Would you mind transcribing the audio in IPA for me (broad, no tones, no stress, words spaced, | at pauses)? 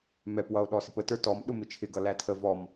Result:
mɛp wʌo̯ɗɔsɪpə tə˞tɔm ɗʊmɪt͡ʃʰɪ ɡʌlætʰə vɔm